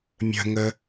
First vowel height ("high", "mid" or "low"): mid